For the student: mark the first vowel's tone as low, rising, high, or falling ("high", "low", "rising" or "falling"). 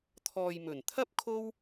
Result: low